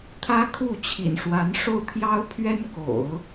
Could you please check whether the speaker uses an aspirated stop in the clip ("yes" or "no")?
yes